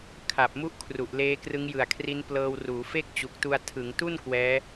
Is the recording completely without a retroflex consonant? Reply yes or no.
yes